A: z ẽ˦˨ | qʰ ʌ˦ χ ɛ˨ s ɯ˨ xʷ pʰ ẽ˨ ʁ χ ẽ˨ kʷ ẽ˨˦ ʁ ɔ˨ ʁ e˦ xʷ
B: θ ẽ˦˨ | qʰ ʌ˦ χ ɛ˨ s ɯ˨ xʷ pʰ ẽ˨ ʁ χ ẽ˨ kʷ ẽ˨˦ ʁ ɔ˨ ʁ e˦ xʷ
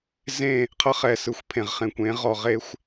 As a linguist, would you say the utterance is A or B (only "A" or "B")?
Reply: A